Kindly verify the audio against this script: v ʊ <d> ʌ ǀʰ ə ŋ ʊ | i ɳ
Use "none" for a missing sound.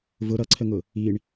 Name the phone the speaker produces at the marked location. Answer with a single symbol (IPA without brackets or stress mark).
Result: ɾ